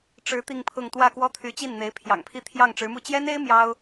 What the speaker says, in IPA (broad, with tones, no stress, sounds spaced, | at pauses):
ʈ͡ʂ ɻ̩˧˥ t̪ i˥˧ ŋ pʰ ʊ˥˧ ŋ t̪ w ä˥˩ k w ɔ˥ t̪ʰ y˧˥ t͡ɕ i˥˩ n n̪ e˧˥ ɪ̯ pʰ j ɑ̰˨˩ ŋ pʰ i˥˧ t̪ʰ j ɑ˥˩ ŋ ʈ͡ʂ ɻ̩˧˥ m u˥˩ t͡ɕ j ɛ˥ n e˥ ɪ̯ m j ɑ˥ ʊ̯